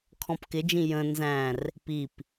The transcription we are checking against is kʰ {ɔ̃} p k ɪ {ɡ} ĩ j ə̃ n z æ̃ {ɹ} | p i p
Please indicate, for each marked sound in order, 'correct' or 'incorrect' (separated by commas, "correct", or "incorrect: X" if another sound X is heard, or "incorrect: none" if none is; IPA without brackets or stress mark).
correct, incorrect: d͡ʒ, incorrect: r